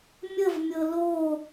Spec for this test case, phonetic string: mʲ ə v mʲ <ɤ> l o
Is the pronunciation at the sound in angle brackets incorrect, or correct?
correct